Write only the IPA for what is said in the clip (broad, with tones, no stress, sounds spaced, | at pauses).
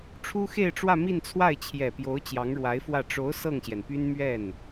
ʈ͡ʂʰ u˥ x e˥˧ ɪ̯ ʈ͡ʂ w ä˥˧ m i˥˧ n t͡sʰ w a˥˩ ɪ̯ t͡ɕʰ j ɛ˨˩ p j o˧˥ ʊ̯ t͡ɕ j ɑ˧˥ ŋ ɻ w a˧˥ ɪ̯ f w ä˥˩ ʈ͡ʂ o˧˥ ʊ̯ s ɤ˥˩ ŋ ɕ j ɛ˩ n p y˥ n m ɥ ɛ˥˩ n